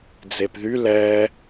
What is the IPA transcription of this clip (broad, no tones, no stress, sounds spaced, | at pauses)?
d͡z e p ð y l ɛ